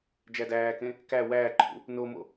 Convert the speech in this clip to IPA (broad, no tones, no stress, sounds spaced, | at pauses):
d͡ʒ æ d æː k ẽ | k æ w æː ǃʰ ṵ | n o m o̰